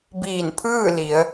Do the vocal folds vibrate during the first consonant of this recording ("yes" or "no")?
yes